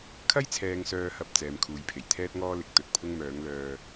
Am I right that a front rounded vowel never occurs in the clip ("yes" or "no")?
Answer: no